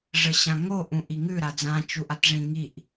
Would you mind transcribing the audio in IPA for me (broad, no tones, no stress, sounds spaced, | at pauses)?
ʐ ə ɕ ã ŋ o ʔ ũ ʔ i ŋ ʉ ɾ a d͡z ã t͡ʃ u ʔ a t ʐ ĩ ŋ i ʔ